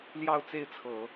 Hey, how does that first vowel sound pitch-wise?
falling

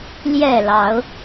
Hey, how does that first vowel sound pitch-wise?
low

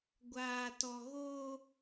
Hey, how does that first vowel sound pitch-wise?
low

